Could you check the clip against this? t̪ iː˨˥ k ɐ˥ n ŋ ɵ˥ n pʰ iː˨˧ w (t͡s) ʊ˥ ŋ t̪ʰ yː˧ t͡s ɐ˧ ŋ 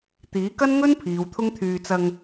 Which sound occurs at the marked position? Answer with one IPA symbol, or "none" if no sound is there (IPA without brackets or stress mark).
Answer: t̪ʰ